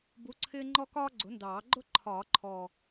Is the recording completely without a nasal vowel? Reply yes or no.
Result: yes